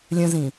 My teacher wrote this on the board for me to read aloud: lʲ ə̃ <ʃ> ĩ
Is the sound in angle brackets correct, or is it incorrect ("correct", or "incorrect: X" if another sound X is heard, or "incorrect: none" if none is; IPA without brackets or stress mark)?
incorrect: z